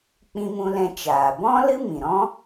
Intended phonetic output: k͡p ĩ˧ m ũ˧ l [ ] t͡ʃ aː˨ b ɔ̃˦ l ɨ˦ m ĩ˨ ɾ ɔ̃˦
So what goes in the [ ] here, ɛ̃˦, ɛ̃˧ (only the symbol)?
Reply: ɛ̃˧